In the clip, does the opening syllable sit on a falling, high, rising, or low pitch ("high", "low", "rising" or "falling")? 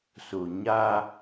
low